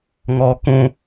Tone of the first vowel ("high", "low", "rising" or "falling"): low